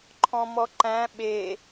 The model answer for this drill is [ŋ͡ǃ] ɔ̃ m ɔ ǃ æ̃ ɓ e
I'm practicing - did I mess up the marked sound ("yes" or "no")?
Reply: yes